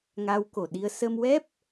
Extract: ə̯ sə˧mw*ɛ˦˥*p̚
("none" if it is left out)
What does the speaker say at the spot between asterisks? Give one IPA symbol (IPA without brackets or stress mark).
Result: ɛ˦˥